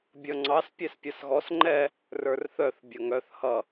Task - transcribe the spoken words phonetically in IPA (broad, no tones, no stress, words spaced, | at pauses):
bʲʌŋ͡ǀɑs pʲɛspʲʌsɣɔs ŋ͡ǃɛ | rə˞rθœθ bʲʌŋœθ hʌ